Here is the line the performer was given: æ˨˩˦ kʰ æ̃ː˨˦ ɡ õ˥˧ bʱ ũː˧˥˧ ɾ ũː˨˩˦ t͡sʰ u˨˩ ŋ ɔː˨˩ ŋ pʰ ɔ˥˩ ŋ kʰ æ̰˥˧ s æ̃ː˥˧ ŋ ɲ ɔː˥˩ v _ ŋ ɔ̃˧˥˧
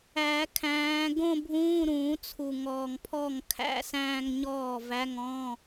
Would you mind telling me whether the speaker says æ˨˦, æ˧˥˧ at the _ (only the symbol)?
æ˧˥˧